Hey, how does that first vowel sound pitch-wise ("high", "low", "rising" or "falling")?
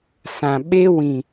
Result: low